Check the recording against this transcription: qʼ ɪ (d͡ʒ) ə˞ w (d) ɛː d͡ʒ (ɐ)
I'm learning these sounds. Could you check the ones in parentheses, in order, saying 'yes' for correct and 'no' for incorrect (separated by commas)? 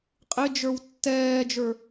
yes, no, no